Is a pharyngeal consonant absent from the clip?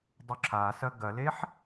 no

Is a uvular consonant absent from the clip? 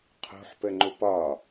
no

